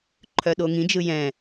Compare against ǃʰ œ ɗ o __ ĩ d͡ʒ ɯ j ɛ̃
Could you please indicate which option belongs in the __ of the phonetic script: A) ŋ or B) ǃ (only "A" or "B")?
A